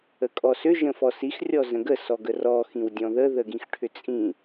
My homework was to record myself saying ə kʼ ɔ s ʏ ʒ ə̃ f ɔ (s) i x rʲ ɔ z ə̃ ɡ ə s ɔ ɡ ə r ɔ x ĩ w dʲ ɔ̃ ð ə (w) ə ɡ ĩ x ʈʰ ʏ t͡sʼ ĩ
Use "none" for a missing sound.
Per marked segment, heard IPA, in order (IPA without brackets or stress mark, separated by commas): s, ð